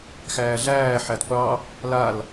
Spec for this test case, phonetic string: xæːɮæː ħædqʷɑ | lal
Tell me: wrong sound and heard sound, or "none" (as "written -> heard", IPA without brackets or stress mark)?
none